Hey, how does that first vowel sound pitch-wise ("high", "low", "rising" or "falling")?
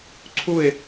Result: falling